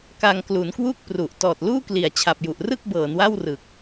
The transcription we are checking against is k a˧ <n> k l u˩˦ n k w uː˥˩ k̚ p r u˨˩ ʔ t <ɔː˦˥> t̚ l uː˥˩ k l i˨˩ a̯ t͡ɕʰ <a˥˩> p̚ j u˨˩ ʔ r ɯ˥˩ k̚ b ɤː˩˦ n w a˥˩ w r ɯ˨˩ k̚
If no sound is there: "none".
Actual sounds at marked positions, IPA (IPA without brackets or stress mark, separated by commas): ŋ, ɔː˨˩, a˨˩